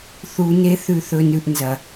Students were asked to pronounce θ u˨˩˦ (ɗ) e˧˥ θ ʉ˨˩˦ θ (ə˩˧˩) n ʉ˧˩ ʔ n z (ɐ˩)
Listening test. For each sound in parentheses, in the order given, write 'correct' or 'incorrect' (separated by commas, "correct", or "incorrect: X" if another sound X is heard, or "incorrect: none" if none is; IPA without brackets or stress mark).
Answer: incorrect: n, incorrect: ɵ˩˧˩, correct